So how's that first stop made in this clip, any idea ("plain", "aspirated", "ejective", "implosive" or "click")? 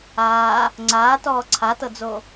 click